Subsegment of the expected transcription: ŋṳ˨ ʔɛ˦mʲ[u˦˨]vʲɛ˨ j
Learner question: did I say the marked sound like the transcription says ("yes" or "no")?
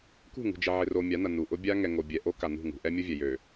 no